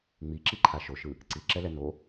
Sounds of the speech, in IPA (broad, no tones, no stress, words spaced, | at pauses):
ŋ͡miǁiǃʰa ʃoʃɯ | ǀiǁɛlɛ no